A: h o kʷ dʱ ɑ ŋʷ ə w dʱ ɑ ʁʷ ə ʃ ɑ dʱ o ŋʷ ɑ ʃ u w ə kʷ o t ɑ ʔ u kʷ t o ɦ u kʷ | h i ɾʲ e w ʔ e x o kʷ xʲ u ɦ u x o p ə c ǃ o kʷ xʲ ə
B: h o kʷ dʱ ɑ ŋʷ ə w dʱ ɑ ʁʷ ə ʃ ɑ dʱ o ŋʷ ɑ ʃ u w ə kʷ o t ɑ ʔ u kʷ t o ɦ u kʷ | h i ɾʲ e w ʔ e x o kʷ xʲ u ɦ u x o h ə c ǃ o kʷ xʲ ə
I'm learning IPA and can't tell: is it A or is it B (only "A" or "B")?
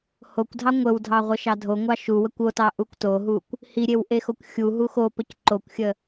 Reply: A